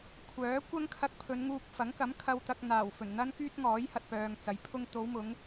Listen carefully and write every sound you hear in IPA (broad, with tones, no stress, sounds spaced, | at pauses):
kʷʰ œː˨˥ kʷ ɐ˥ ŋ kʰ ɐ˧ k̚ pʰ ɵ˨˧ n ŋ uː˧ k̚ f ɐ˨˥ ŋ k ɐ˨˥ m kʰ ɐ˧ w t̪ ɐ˧ k̚ n̪ aː˨˩ w f ɵ˨˩ n n̪ ɐ˥ n k yː˥ t̚ ŋ ɔː˨˥ j h ɐ˧ t̚ p œː˨ ŋ t͡s ɐ˨˥ j pʰ ʊ˥ ŋ t̪ o˨˧ w m ʊ˨˧ ŋ